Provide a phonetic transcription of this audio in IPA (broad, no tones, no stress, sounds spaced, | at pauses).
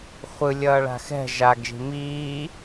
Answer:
χʷ ɯ lʲ ʌː ɭ a̤ x ɛ̤ ʒ a ɡ ʒ i̤ m iː